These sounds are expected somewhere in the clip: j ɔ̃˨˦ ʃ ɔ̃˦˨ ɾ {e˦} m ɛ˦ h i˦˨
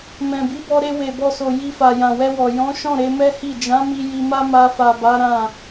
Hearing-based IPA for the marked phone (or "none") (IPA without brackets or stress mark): e˧